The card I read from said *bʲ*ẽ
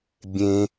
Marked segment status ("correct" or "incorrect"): correct